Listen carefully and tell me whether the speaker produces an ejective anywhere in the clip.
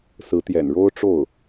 no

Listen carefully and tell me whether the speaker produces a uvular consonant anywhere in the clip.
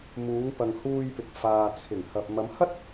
no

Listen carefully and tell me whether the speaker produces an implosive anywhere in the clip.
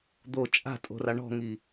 no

